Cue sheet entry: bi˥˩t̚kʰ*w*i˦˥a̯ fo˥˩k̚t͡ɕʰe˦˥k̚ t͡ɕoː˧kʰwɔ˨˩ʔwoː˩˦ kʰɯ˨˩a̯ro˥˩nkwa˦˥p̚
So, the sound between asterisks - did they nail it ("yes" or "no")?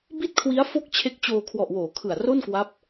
yes